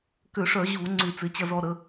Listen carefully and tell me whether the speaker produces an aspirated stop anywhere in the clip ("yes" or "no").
no